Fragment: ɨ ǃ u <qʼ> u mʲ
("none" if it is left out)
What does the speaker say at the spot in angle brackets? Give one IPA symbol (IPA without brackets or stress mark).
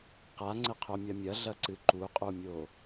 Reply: qʼ